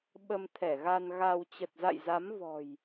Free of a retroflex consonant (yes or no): yes